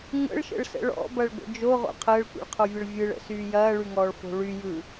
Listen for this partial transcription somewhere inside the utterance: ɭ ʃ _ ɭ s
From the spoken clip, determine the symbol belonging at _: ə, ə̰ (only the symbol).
ə̰